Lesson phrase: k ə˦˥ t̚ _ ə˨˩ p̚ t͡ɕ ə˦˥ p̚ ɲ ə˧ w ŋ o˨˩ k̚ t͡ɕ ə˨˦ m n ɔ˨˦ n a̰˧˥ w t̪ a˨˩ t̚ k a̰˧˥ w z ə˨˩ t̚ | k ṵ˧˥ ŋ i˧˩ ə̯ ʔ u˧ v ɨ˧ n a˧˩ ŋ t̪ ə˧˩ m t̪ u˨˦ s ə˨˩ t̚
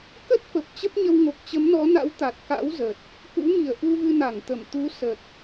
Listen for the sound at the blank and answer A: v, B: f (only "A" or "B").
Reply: B